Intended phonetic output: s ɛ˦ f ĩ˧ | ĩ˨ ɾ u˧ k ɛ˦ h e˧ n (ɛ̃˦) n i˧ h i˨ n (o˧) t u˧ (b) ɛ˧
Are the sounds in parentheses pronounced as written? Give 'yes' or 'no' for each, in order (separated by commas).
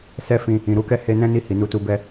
yes, no, yes